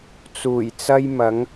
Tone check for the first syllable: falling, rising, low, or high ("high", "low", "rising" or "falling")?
low